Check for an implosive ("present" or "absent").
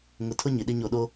present